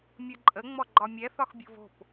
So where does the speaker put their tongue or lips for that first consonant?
lips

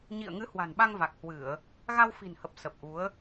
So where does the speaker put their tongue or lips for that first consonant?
palate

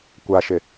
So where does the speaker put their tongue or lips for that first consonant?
velum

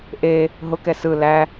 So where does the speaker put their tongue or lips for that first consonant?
throat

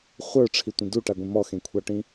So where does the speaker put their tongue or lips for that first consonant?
uvula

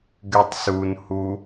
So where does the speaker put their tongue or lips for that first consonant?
velum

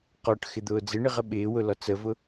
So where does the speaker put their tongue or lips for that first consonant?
uvula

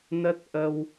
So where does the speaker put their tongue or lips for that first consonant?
tongue tip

